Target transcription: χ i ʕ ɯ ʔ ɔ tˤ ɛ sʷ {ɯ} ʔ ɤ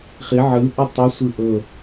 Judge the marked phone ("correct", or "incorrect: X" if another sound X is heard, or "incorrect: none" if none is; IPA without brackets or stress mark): correct